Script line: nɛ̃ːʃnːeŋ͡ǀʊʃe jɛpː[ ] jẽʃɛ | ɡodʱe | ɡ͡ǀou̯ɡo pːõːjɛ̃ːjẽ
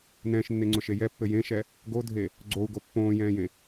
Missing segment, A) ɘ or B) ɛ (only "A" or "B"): A